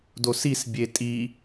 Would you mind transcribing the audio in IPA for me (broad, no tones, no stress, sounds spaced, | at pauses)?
d o s i s bʲ e tʼ i